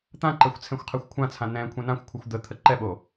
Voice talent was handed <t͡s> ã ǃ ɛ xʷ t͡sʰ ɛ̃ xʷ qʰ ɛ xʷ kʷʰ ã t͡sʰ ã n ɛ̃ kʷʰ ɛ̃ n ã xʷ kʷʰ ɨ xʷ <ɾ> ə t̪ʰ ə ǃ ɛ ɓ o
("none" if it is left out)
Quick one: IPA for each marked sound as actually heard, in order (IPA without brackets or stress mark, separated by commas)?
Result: t̪, d̪